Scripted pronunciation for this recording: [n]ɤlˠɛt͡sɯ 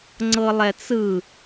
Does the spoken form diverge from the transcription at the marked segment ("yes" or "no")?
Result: yes